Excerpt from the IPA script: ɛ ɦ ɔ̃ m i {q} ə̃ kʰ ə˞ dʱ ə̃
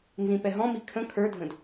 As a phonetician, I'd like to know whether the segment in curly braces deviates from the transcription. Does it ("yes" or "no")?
yes